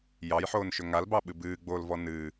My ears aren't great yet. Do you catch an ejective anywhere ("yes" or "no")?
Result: no